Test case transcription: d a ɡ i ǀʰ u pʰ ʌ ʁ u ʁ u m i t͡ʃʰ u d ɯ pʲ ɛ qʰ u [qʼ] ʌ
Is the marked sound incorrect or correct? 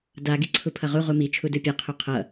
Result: incorrect